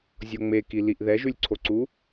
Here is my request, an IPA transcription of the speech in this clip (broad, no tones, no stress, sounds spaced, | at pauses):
zʲ o ŋ͡m e k i l i ʔ ð ɛ ʒ ʉ lʲ ǀʰ o ǀ u